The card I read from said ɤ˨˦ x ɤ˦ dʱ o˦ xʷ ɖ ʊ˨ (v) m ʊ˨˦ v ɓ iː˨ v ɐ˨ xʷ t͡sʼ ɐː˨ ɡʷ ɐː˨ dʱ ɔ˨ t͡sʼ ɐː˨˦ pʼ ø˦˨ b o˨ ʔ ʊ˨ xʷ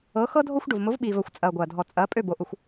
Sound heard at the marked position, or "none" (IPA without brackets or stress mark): v